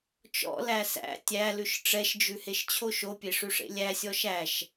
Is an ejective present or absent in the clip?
absent